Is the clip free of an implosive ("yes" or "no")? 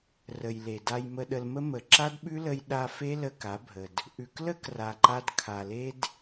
no